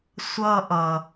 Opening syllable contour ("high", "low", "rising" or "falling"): high